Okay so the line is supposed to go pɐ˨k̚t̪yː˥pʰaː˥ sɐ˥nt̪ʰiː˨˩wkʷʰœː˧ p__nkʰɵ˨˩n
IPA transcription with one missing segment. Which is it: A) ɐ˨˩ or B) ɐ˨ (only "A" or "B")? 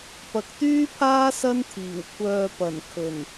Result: A